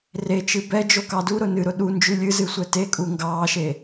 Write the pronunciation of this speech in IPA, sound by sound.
r e t͡ʃ ɨ b ɛ d͡ʒ o k ɑ d u ɾ ʊ n ɨ ɾ ʊ ɗ u n d͡ʒ ʉ lʲ ɨ z ɨ sʷ ɛ t e kʼ u ŋ ɡ ɑː ʃ e

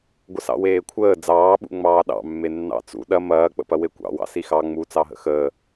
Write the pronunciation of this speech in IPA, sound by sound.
ɡʷ ə s ɑ̰ w eː kʷʰ əː d͡z ɑː ɓ ṵ ŋ͡m ɑː ɗ ɑ̰ mː e nː ɑ̰ t͡s ṵ ɗ ɐ m ɐː k͡p ə̰ p ɐ w e kʷ ɑ̰ w ɑ̰ s i x ɑ ŋ͡m u t͡s ɑ ɦ ə̰ x əː

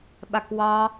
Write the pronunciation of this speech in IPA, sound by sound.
ɓ a k w ɑ

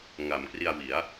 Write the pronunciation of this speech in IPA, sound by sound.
ŋ a˩˦ m k r i˧ a̯ w i˩˦ a̯

